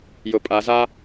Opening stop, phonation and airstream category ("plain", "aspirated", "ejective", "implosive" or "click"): ejective